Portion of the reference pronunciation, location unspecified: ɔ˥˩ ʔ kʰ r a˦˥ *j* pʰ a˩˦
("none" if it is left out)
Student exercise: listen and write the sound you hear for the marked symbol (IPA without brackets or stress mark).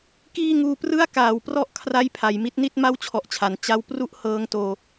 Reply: j